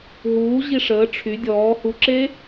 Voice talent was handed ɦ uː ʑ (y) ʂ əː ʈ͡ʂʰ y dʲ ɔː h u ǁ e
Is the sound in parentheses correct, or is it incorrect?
incorrect